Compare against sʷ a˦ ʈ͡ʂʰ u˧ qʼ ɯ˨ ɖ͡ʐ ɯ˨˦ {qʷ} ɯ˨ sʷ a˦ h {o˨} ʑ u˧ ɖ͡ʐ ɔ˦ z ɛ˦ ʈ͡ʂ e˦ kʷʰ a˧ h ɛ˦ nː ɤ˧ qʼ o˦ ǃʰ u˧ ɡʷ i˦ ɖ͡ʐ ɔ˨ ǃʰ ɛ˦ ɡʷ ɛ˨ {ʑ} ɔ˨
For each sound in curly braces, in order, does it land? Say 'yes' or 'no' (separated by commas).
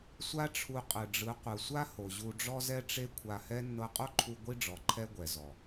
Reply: yes, yes, no